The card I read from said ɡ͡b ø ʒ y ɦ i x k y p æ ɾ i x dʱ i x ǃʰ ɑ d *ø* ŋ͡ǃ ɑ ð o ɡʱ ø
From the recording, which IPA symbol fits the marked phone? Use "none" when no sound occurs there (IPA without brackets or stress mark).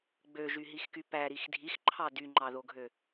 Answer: y